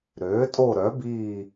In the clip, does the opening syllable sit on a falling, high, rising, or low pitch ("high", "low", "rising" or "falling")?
rising